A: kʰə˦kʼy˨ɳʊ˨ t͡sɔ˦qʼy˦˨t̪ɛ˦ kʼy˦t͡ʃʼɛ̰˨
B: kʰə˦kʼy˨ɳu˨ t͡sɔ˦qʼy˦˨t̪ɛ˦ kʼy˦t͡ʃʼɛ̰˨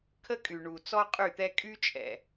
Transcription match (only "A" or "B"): B